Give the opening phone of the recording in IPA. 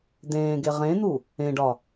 d̪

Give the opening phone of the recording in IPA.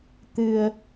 t̪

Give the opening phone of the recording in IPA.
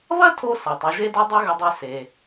β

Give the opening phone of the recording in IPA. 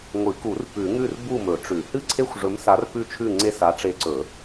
ŋʷ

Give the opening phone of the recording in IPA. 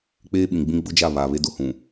k͡p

